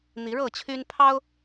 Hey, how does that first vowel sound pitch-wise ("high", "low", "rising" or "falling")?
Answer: rising